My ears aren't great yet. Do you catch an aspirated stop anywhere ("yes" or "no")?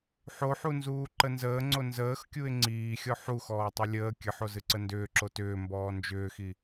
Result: no